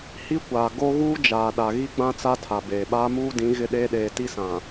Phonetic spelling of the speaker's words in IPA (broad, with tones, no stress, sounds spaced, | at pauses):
h i˦ kʷ aː˨ ɡ o˦ ɣ uː˦ d͡ʒ aː˨ ɗ a˨ ɣ i˦ ɡ͡b ã˦ t͡s a˦ tʰ a˨ b eː˨ ɓ aː˦ m uː˦ d ĩ˨˦ ɣ ɪ˦ ɗ eː˦ ɗ eː˨ t i˦ s ã˨